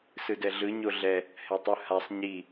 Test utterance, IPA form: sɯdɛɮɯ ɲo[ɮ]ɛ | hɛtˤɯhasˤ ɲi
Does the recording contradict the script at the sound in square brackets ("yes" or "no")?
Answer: no